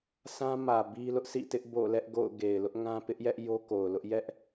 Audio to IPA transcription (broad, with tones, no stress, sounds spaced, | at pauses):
sʰ ã˦ m ä˨ b i˦ l ʊ˦ ʔ sʰ ḭ˦˨ t ɪ˦ ʔ b o̰˦˨ l ɛ˦ ʔ ɡ o̰˦˨ ʊ̯ ɡ e˨ ɪ̯ l ʊ˦ ʔ ŋ ã˦ p ɪ˦ ʔ j ɛ˦ ʔ j o˦ k o˨ ʊ̯ l ʊ˦ ʔ j ɛ˦ ʔ